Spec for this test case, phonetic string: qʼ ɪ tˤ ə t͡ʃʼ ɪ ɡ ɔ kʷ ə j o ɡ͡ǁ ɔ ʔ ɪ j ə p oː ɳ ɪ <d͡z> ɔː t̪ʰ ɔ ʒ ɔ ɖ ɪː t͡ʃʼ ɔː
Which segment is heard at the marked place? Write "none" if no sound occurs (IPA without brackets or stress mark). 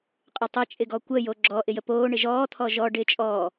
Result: ʒ